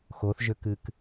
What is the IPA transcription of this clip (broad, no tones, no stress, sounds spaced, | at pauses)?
x o θ ʒ ø k ɨ k